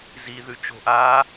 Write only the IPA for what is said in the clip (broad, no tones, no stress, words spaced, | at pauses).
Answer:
ziðʉ t͡ʃo̤ʔa